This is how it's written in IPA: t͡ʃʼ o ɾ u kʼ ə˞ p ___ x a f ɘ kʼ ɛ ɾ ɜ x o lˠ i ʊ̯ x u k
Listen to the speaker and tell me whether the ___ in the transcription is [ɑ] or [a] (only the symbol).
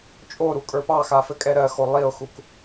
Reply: ɑ